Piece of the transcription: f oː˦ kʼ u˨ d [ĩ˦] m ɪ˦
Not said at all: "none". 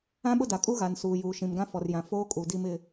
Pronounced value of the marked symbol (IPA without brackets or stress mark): i˦